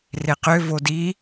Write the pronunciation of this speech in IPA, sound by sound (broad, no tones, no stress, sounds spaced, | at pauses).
r e q ø v o d i